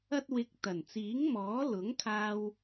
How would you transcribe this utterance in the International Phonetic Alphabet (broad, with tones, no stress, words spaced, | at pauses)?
ɐ˥t̚wɪ˧k̚ t̪ɐ˨˩nt͡siː˨˥ŋmɔː˨˥ lʊ˨˥ŋkʰaː˧w